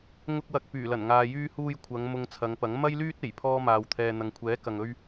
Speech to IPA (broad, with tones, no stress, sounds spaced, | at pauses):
ŋ ʊ˧ k̚ w ɐ˨ k̚ p yː˨˩ l ɐ˨˩ n ŋ aː˨ j yː˧ h uː˧ j kʷʰ ɐ˨˧ ŋ m ʊ˧ ŋ t͡sʰ ɐ˨˧ ŋ p ɐ˨˥ ŋ m ɐ˥ j l yː˥ t̚ e˨˩ j pʰ ɔː˥ m aː˧ w t̪ʰ ɛː˧ n̪ ɐ˨ ŋ kʷʰ ɛː˨˥ k ɐ˨ ŋ ɵ˥ ɥ